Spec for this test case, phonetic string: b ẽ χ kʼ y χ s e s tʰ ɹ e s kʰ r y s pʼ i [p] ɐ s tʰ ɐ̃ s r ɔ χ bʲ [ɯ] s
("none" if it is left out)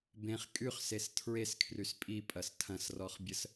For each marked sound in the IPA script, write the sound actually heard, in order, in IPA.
pʼ, ə

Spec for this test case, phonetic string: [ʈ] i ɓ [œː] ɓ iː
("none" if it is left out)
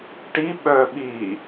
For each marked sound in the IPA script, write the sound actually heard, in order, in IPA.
ʈ, œː

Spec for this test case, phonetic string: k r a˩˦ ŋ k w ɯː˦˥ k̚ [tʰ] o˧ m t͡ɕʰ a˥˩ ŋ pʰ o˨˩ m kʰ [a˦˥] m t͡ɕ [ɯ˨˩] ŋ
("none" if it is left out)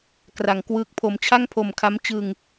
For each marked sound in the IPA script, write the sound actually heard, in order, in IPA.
pʰ, a˦˥, ɯ˧

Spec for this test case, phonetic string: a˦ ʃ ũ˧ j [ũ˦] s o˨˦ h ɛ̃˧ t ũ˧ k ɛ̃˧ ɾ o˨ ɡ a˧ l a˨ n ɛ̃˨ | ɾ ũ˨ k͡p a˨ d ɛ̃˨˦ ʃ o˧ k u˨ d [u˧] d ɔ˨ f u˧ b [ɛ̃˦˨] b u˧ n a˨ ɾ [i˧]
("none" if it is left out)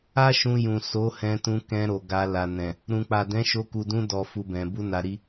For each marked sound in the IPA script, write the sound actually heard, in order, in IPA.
ũ˨, ũ˧, ɛ̃˨, i˧

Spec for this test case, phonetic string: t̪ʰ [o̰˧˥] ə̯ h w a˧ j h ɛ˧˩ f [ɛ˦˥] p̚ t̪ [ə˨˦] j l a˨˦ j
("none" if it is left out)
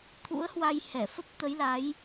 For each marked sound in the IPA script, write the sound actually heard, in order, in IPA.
ṵ˧˥, ə˦˥, ə˨˦

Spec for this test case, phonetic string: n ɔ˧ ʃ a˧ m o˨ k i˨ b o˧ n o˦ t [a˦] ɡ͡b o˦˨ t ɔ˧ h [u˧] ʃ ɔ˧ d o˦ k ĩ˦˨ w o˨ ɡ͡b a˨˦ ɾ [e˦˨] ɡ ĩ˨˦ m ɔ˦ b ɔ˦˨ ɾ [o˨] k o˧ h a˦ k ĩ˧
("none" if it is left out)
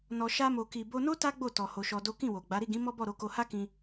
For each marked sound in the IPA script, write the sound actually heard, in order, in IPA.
a˦, o˧, i˦˨, o˧

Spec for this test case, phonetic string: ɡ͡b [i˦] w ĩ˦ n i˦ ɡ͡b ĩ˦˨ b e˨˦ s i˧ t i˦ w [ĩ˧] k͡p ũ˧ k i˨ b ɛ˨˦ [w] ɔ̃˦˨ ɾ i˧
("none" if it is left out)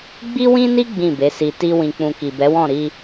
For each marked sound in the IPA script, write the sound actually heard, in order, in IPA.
i˦, ĩ˧, w

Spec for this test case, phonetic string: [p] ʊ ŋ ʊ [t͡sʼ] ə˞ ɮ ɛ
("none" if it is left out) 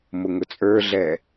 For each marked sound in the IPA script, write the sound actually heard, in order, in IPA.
m, t͡sʼ

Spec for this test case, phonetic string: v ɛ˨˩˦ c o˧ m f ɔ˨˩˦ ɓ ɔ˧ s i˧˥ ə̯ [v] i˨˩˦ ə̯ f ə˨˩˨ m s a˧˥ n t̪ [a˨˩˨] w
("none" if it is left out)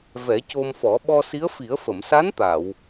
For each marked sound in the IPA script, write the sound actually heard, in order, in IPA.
f, a˨˩˨

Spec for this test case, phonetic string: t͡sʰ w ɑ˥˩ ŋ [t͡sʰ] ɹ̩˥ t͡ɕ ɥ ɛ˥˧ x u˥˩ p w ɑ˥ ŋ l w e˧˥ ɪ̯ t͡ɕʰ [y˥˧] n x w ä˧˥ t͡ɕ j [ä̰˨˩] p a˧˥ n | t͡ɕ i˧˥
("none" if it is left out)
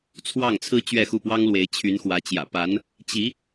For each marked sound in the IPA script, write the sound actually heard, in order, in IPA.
t͡sʰ, y˧˥, ä̰˨˩

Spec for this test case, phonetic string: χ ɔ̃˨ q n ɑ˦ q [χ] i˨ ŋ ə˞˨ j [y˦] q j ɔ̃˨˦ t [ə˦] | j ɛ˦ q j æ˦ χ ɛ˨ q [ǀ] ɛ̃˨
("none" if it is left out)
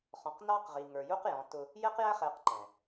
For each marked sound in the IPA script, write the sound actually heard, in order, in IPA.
ʁ, u˦, ʊ˦, ǃ

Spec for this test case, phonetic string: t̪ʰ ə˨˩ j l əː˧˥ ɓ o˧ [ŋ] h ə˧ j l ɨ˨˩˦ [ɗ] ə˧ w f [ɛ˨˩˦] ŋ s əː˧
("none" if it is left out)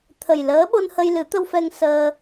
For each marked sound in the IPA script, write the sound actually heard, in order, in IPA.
n, t̪, ɛ˧

